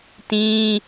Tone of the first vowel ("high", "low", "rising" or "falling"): high